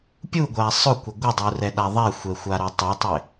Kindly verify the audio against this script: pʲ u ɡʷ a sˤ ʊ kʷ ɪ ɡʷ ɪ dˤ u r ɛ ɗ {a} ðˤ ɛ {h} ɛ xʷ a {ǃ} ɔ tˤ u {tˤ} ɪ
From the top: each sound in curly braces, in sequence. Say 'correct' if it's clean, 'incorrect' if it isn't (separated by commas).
correct, incorrect, incorrect, correct